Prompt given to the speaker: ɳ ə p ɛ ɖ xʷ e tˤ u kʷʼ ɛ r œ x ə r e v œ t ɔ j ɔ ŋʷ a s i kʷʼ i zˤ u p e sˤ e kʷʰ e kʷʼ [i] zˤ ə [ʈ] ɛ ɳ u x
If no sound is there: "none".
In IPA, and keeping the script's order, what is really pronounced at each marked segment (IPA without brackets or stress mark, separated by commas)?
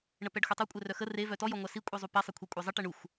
e, ʈ